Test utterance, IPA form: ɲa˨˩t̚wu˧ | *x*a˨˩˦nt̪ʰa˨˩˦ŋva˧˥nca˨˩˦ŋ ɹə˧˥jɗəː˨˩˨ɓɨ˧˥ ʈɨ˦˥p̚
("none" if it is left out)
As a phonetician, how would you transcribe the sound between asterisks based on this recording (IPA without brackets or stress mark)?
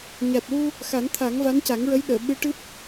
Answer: x